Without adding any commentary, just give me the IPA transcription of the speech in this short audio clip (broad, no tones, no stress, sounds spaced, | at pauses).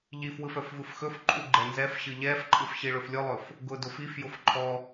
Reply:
ʎ i f w ɯ f œ f v ɯ f x ɵ f ǃʼ u ɡ͡ǃ ɛ n z ɛ f ɕ ɯ ʎ ɛ f ǃʼ ɯ f ɕ i ɭ ɵ f lʲ ʊ lˠ ɵ f | ɡ ʊ d ʊ f i f j ʊ f ǃʰ ɔ